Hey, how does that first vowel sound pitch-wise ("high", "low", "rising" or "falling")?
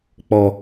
low